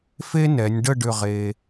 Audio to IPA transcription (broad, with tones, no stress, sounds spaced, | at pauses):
f e˥ n ɛ˩˧ nʲ ɖ ə˥˧ ɖ ʏ˥˧ ʁ e˧